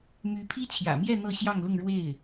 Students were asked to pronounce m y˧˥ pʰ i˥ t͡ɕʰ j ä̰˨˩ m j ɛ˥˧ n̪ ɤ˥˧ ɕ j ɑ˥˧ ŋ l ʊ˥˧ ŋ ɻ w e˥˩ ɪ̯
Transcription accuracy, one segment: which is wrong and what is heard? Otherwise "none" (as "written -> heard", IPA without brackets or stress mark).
none